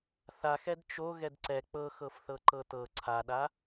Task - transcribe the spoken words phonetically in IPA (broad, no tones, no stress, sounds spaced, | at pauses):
θ a x ɛ d t͡ʃ o ɣ ɛ d ǀ ɛ k͡p ɤ x ɤ f θ ɤ ǃ ɤ t ɤ ǀʰ a ɗ a